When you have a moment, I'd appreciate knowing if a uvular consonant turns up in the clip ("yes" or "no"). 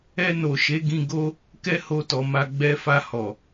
no